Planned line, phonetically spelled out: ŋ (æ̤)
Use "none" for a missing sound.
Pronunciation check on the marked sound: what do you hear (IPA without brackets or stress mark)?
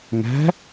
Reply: æ̤